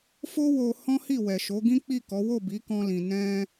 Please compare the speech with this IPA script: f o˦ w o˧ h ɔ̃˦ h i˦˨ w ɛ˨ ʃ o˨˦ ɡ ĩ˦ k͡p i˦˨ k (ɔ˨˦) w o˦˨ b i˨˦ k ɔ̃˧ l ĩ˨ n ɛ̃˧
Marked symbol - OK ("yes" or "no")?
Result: yes